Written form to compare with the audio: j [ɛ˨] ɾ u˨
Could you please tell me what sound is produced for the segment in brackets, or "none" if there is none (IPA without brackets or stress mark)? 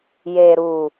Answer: e˨